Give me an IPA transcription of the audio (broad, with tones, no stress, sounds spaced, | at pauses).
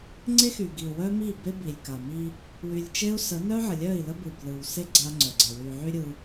ŋ͡ǀ e˦ x y˨ ɡ i˨ u̯ w œ˦ m i˦˨ b e˦ b i˨ lʲ k a˨ m i˦ | w y˨ lʲ t͡ʃ e˦ u̯ s ə˨˦ n œ˦ ʕ ə˨ lʲ œ˦˨ i̯ l ə˦ b ɯ˨ b l ɯ˨ w s e˦ ɡ͡ǀ a˦ ŋ͡ǀ œ˨ ɡ͡ǀ e˨ w y˨ ʕ y˦ ɾʲ ɯ˦